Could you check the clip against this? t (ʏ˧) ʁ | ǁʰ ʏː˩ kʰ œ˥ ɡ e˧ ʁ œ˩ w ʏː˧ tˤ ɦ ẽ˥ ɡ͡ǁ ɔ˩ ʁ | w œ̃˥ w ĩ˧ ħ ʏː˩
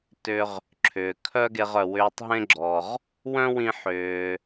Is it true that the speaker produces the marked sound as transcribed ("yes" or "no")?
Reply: yes